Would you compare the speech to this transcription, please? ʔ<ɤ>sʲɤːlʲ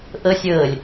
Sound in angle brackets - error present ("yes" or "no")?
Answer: no